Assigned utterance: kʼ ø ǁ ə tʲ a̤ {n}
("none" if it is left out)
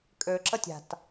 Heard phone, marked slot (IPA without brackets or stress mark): t